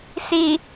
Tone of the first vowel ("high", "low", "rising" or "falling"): low